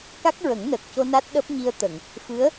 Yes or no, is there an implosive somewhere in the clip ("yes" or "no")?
yes